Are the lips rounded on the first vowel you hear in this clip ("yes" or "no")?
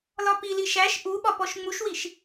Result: yes